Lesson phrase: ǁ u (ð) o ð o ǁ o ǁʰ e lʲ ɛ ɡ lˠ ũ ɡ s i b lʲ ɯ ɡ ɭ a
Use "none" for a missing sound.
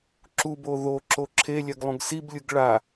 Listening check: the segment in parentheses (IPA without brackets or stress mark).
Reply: b